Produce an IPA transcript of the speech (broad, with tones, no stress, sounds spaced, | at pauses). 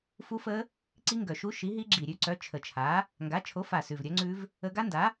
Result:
f u˦˥ f ə˦˥ | ǀ i˦˥ ŋ ɡ œ˨˩ ʃ u˦˥ ʃ i˨˥ ɦ i˦˥ ɡ͡ǁ i˨˩ ɾʲ ʉ˦˥ ǀ œ˨˥ t͡ʃʰ ə˨˩ t͡ʃʰ a˨˥ | ŋ ɡ a˨˥ t͡ʃʰ o˨˥ f a˨˩ s ʉ˨˩ v ɾʲ œ˨˥ ŋ͡ǀ ʉ˦˥ v | ə˦˥ ɡ a˦˥ n d a˨˥